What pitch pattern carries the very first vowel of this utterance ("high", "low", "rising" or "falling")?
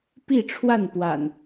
falling